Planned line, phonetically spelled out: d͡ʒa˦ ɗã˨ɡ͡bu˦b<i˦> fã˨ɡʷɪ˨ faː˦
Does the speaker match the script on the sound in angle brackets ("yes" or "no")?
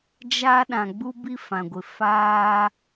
yes